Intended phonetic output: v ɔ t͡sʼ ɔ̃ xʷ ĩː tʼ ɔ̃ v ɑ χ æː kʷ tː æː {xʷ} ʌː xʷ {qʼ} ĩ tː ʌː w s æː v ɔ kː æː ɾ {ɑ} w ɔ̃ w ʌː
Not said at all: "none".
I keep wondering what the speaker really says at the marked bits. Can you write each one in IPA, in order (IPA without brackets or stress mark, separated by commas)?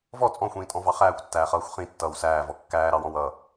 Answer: χ, χ, ɑ